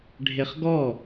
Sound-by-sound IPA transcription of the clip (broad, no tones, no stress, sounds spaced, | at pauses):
ɖʱ e χ ɡ ɔ